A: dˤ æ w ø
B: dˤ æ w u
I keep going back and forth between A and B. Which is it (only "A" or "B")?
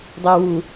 B